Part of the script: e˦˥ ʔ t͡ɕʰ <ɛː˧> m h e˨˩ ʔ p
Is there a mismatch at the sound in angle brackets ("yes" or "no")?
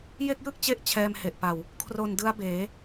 no